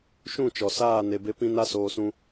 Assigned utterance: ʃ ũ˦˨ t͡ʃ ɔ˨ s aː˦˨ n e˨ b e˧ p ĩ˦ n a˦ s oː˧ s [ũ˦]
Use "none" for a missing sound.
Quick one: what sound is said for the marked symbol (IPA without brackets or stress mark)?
ũ˦